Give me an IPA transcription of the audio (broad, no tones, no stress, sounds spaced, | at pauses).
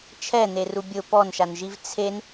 t͡ʃʰ ɛ n̪ e r u bʲ ʊ p ɔ n ʃ a n ʒ i v t͡sʰ e n